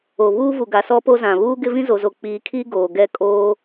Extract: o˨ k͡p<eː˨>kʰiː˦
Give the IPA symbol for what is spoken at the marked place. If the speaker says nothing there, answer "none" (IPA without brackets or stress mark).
iː˨